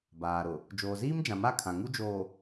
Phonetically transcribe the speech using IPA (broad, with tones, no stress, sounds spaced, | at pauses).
b aː˨ ɾ ʊ˨ | d͡ʒ oː˨ z iː˦ m d͡ʒ ã˨ m a˦˨ kʰ ã˨ ŋ u˦ d͡ʒ oː˨